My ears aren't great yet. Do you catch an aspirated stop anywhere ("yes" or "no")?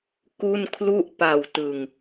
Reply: yes